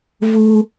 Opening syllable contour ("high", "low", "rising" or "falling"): high